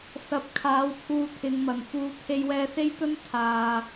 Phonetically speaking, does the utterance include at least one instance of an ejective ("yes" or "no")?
no